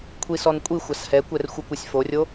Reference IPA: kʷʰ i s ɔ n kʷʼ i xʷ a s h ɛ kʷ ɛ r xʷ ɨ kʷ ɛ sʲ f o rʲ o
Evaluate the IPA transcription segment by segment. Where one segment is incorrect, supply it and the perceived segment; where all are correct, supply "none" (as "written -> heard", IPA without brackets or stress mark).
none